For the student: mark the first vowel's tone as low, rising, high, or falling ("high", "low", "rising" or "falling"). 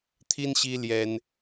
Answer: high